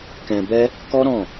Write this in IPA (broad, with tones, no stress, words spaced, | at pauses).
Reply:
kɛ̃˧bɛ˦ | kɔ˦ɾɔ̃˦˨